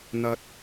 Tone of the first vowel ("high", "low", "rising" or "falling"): rising